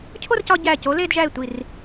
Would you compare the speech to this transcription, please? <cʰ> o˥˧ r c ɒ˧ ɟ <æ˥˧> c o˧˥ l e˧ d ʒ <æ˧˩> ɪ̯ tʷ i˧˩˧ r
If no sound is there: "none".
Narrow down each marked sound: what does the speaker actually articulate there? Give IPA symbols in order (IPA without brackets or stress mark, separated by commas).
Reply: cʰ, æ˧˩, æ˧˩